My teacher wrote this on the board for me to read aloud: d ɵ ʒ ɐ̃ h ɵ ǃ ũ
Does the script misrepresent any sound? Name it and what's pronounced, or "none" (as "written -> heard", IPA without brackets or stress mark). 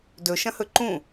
ʒ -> ʃ